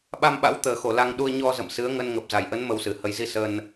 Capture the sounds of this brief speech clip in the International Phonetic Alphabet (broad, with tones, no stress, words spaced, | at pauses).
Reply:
ɓa˧mɓa̰˧˥wt̪əː˨˩xo˧˩ la˧ŋɗu˧ə̯ ɲɔ˧zə̰˧˨m sɨ˨˦ə̯ŋə˧n ŋə˨˩p̚za˧˩jʔə˨˦n mə˧wsɨ˨˩ hə˨˩jzi˧ sə˧n